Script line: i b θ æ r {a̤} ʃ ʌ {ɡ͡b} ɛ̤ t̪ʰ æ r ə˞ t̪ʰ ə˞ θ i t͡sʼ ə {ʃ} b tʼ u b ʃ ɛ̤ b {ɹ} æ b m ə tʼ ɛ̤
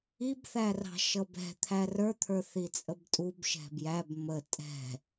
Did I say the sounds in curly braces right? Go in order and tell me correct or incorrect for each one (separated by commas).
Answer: incorrect, incorrect, incorrect, incorrect